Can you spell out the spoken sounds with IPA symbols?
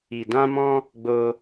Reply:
i˨ d ã˧ m ɔ̃˧ | ɡ͡b o˧

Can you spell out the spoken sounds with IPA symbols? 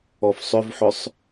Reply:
ɔ f sˤ ʏ v ħ ʏ sˤ

